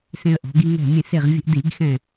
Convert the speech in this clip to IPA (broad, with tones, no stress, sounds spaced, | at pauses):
s ẽ˧ ə̯ ʔ ɔ̤˩˧ ɡ i˧ ŋ ɛ̤˧˩ mʲ ẽ˧˩ s e˧˩ ʁ vʲ ə̤˧ ʔ d i˧˩˧ ɡ x ɛ̃˧˩